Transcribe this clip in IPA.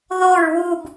ð o ɹ w u b

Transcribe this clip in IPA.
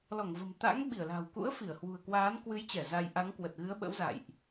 l ɔ˧˩ ŋ v ə̤˨˩ m t̪ a̰˧˥ ŋ ɓ i˧˩ ə̯ l a̤˨˩ w k ṵ˧˥ ə̯ f i˧˩ ə̯ h w ṳ˨˩ ə̯ k w aː˨˦ n k w ɨ˨˦ j t͡ɕ ɛ˧˩ z a˧ j ʔ a˨˦ ŋ k w ə˨˩ t̚ ɣ ɨ˨˦ ə̯ ɓ ə̰˧˥ w z a̰˧˨ j ʔ

